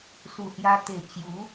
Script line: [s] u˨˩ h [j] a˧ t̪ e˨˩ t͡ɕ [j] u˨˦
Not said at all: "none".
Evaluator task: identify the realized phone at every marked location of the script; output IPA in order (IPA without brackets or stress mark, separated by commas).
s, j, j